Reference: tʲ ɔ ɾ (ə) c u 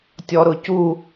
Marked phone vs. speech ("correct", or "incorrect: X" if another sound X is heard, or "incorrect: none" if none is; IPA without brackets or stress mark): incorrect: ʊ